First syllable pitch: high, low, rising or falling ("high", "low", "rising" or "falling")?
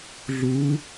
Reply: rising